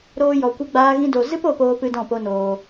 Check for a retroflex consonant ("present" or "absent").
absent